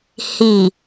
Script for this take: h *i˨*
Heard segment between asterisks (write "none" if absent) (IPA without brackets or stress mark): i˨